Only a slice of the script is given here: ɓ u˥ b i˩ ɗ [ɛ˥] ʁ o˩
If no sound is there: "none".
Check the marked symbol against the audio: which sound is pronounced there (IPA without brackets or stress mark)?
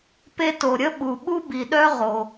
œ˥